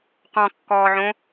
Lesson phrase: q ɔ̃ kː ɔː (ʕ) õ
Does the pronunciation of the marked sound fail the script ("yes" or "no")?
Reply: no